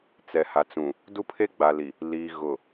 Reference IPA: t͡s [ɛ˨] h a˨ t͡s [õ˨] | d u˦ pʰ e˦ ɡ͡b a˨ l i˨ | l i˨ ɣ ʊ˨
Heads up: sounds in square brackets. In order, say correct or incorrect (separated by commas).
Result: correct, incorrect